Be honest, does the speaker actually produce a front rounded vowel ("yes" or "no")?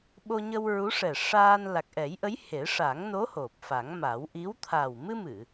no